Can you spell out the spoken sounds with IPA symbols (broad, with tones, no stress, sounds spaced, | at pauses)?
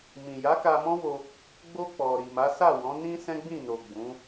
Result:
m ĩ˨ j a˨˦ k a˧ m ɔ̃˦ w o˧ | ɡ͡b o˧ k͡p ɔ˨ ɾ i˨ m a˨˦ s a˦˨ w ɔ̃˨˦ n ĩ˦ s ɛ̃˦ ɡ͡b ĩ˦˨ n o˨ ɡ͡b ũ˨˦